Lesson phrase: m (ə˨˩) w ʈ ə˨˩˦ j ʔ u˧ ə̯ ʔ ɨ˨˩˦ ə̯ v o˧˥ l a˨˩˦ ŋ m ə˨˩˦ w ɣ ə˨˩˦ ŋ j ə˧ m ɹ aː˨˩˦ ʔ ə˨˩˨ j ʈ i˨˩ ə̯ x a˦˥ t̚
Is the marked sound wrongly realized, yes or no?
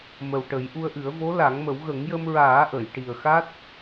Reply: no